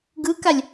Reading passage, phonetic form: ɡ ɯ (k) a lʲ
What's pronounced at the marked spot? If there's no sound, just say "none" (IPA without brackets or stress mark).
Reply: k